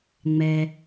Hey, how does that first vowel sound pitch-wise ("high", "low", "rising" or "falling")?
low